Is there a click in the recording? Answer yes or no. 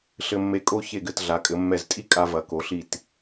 no